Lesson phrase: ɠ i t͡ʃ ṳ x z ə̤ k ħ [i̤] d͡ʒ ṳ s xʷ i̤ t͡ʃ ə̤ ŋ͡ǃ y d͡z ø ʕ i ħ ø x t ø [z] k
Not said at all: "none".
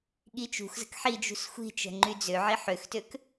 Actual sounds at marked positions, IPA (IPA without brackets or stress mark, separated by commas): i, none